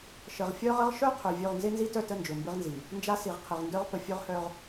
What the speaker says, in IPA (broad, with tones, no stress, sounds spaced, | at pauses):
ʃ ə˨ ʁ fʲ œ˦ ʁ ə˦ ʁ ʃ œ˦ qʰ ø˨ vʲ ø˦˨ ʁ n z ɪ˦ n z i˦ t œ˦˨ t ə˦˨ n d͡ʒ ø˨ m b ɪ˦ ʁ n z i˨ | n d͡ʒ a˦ s i˨ ʁ qʰ ɪ˨ ʁ n d œ˦ ʁ p ə˨ fʲ ø˦ ʁ h œ˦ ʁ